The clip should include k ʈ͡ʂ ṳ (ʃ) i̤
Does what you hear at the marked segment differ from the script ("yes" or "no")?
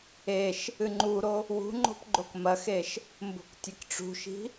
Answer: no